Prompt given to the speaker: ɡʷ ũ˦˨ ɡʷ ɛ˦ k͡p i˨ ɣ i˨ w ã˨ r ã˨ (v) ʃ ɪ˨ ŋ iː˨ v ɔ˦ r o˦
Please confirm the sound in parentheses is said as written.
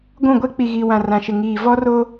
no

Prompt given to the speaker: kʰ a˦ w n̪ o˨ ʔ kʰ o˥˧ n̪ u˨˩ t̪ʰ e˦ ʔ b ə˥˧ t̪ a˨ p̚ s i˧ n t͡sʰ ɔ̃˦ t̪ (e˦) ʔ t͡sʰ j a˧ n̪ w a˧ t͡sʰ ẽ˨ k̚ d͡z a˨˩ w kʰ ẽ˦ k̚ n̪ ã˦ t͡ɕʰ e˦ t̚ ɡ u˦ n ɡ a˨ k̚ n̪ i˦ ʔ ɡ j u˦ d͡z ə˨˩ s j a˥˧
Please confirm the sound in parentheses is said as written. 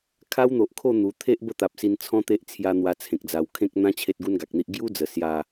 yes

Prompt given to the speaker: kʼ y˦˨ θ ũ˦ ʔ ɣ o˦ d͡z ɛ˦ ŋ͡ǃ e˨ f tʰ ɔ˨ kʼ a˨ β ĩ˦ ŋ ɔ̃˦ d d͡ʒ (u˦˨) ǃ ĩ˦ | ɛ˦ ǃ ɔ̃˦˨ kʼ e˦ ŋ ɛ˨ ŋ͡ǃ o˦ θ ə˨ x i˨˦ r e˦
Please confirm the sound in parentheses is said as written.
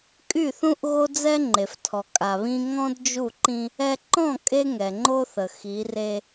yes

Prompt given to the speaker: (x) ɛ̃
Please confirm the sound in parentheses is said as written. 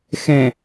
yes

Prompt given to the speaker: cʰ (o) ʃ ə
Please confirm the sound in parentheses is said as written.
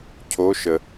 yes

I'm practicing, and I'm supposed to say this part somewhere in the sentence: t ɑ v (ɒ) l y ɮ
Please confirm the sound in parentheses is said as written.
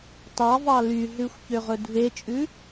no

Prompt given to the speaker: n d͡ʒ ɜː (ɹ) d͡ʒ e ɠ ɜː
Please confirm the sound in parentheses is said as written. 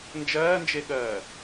no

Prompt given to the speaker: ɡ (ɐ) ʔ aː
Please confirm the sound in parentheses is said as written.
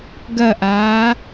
yes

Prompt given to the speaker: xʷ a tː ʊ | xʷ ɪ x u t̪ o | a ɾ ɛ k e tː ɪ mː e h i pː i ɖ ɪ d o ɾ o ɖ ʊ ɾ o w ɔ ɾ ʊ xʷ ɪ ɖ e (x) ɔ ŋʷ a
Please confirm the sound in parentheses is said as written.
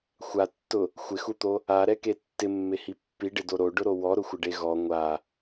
no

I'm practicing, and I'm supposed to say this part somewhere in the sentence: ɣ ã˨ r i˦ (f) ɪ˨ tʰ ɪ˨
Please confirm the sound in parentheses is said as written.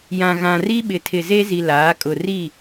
no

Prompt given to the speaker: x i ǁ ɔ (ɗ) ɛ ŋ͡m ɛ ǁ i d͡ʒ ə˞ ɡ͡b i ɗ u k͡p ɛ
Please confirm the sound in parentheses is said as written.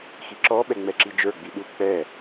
no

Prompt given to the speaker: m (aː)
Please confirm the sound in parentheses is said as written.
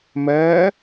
no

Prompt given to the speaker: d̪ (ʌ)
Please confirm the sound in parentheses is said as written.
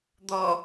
no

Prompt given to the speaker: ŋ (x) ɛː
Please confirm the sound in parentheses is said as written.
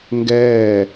no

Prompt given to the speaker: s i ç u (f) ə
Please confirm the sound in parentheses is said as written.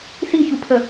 no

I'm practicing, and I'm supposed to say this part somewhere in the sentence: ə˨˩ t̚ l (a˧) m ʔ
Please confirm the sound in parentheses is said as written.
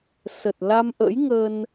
yes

